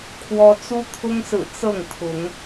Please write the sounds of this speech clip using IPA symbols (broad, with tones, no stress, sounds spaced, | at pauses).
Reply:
kʰ w ɔ˦ t͡s u˦ t̪ʰ ʊ˦ ŋ s ɹ̩˨˩ t͡s ɤ˥˨ ŋ t̪ʰ ʊ˨˦ ŋ